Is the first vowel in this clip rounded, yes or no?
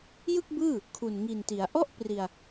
no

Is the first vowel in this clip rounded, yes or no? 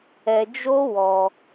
no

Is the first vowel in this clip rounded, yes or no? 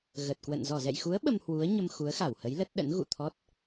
no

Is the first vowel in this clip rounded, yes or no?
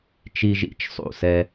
no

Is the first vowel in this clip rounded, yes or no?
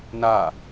no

